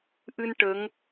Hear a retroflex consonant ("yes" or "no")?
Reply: yes